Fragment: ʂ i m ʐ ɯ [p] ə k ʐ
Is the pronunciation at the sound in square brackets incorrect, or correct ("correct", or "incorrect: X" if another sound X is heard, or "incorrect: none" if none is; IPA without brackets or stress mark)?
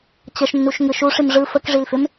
incorrect: f